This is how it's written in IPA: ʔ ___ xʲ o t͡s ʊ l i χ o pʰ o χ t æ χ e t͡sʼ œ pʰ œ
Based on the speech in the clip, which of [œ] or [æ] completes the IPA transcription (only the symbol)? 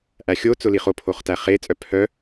æ